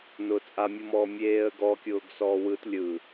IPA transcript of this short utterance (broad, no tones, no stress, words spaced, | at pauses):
nʊːt͡sʼamʲɯmɔː mʲeːə̯ɡɔkʲʊːɡ sɔːwɯt lʲɯ